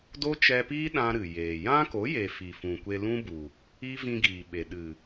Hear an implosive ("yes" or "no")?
yes